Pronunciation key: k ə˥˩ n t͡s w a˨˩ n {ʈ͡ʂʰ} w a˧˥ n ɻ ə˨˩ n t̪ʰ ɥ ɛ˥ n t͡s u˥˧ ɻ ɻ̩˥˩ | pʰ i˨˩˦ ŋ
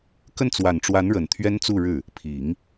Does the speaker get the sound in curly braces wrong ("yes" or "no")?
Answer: yes